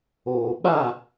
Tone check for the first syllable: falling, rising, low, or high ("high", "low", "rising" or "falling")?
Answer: low